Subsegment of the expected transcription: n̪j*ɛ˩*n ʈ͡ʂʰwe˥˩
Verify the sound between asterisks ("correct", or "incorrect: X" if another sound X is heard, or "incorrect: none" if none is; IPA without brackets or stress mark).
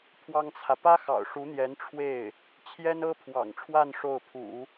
incorrect: ɛ˧˥